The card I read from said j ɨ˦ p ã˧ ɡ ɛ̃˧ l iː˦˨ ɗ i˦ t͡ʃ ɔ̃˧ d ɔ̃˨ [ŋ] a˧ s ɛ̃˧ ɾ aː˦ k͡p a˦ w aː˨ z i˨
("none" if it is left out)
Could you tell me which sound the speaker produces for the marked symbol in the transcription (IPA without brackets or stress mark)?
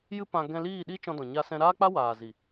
ɲ